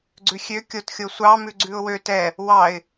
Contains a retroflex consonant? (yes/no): no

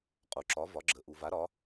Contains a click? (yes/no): yes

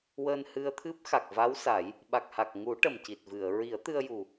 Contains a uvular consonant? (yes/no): no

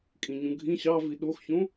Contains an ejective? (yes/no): yes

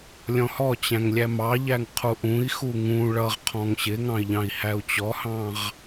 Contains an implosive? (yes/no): no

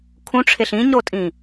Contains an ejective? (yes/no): yes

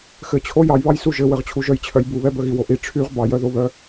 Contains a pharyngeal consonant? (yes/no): no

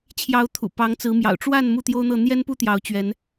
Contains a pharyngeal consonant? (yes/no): no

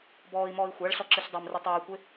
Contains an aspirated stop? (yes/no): no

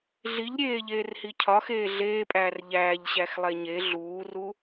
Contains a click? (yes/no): no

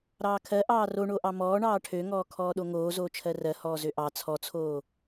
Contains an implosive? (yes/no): yes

